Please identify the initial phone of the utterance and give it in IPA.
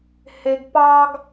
h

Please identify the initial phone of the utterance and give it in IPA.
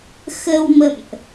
x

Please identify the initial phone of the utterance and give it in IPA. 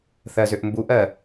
θ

